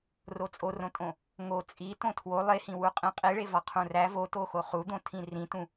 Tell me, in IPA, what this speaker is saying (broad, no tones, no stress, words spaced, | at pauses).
rot͡sʼorõtʼõ | ŋo t͡sʼi tõtʰwo lˠehĩwuqʼĩ qʼiɭe vɒqʰũræ votoxo χud̪õ tʰĩrĩtũ